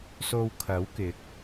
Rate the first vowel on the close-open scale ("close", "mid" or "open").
mid